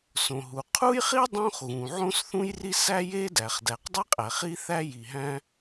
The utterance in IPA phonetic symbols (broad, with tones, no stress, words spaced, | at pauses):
sõ˩ɦu˩ qʰu˥jχi˥ dˤõ˥χ ɣũ˩ʕõ˥sθũ˥jri˥ sæ˥je˥dæ˩χ dæ˩qdˤi˥qʼæ˩χ i˥θæ˥ ji˩ɦæ̃˥